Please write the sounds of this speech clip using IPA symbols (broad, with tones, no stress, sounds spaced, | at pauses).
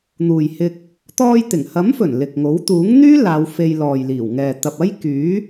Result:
n̪ uː˨ j h ɪ˧ k̚ | t̪ ɔː˧ j t̪ ɪ˨˩ ŋ h ɐ˨˥ m f ɵ˨˩ n l ɪ˨ k̚ ŋ o˨˥ w t̪ uː˨˥ ŋ n̪ yː˥ l aː˨˧ w f e˧ j l ɔː˨ j l iː˨˩ w ŋ ɛː˨ t̪ ɐ˨ p̚ ɐ˥ j k yː˨˥